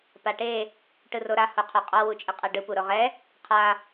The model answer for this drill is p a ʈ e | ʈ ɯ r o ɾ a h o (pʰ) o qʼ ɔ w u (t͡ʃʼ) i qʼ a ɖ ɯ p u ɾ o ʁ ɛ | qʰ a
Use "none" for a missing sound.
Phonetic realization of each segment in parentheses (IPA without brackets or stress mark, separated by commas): qʰ, t͡ʃʼ